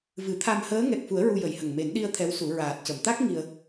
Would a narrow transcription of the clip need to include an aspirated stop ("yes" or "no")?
yes